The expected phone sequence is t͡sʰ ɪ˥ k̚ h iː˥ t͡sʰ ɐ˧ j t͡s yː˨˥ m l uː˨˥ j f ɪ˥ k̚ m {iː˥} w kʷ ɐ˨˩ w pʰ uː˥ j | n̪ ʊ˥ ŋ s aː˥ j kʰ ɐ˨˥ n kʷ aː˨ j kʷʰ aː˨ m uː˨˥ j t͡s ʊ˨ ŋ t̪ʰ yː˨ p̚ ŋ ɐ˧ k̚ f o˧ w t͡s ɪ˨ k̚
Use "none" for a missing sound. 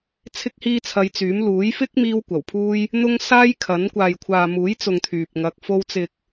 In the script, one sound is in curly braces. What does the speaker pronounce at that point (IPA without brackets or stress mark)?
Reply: iː˥